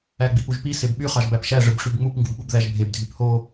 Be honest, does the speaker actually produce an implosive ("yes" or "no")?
yes